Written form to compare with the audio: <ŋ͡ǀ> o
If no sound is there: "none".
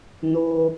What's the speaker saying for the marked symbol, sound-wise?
n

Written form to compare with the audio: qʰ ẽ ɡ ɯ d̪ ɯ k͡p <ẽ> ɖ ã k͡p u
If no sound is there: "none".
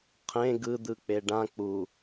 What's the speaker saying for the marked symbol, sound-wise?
e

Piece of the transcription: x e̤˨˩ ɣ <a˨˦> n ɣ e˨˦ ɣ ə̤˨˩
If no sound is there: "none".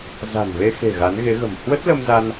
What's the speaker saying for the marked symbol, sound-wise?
a˨˦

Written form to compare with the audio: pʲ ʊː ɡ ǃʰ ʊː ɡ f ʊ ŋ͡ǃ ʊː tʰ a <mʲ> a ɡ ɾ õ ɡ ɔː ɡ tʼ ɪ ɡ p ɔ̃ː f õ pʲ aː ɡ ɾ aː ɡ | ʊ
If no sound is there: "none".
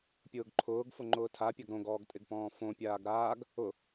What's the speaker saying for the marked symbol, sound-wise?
pʲ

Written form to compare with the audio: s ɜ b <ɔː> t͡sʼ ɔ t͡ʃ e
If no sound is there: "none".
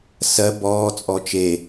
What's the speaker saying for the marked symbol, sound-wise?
ɔː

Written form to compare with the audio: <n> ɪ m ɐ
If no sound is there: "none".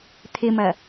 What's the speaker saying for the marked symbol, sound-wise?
t̪ʰ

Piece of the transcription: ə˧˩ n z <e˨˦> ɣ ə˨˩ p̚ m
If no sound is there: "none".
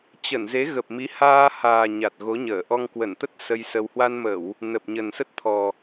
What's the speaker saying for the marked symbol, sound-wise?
e˨˦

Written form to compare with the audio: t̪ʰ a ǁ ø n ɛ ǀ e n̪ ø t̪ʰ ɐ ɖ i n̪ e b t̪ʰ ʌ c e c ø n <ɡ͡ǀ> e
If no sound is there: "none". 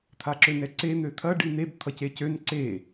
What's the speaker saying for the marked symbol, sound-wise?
ǀ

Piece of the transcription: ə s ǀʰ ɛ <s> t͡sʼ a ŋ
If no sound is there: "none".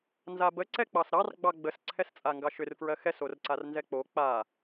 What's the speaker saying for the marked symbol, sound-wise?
s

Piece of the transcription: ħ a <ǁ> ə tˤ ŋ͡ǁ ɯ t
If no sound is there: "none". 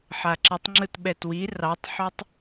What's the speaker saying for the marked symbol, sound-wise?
ǁ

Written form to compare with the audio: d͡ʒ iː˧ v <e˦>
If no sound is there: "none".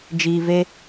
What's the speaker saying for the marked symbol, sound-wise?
e˦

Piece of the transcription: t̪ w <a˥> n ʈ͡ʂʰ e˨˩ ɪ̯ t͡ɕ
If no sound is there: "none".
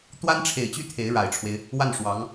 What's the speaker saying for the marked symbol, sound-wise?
a˥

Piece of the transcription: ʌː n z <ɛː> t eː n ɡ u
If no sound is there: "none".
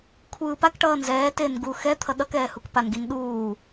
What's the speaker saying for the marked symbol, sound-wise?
ɛː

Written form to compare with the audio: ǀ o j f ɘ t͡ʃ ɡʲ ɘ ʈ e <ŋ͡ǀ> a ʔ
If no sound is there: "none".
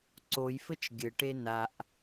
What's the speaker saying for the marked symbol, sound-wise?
n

